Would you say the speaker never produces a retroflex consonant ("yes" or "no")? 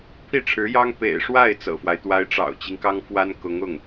no